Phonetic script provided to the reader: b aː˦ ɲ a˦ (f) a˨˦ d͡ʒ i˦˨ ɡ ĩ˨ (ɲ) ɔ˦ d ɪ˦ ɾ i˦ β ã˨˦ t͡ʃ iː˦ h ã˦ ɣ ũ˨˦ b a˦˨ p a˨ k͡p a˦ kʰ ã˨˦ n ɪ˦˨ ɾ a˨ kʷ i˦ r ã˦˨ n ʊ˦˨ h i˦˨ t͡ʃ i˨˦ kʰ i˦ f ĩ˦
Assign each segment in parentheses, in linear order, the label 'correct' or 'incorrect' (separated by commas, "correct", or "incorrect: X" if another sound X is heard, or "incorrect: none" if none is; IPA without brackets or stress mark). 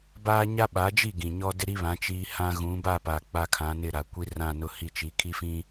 incorrect: ɓ, correct